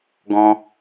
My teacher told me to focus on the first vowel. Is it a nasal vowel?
yes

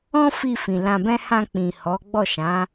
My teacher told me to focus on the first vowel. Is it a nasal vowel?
yes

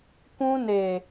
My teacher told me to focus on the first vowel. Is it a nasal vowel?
yes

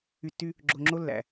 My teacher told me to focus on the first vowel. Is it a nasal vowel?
no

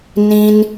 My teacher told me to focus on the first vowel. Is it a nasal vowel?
yes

